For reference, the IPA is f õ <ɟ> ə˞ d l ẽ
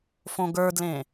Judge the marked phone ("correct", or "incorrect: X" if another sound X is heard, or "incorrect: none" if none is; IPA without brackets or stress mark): incorrect: ɡ